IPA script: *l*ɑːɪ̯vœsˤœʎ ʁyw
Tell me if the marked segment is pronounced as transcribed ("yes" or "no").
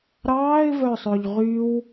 no